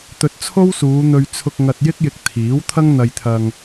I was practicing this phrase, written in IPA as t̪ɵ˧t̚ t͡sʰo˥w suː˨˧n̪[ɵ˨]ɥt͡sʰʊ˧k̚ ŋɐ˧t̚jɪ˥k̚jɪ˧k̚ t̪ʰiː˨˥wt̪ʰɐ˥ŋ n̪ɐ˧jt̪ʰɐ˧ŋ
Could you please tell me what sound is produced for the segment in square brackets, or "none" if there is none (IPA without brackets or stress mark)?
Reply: ɵ˧